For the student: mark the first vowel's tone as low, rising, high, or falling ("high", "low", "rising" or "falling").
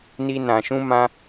high